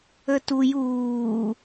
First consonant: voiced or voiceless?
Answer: voiceless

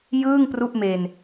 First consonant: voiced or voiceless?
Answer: voiced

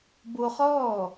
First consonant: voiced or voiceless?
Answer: voiced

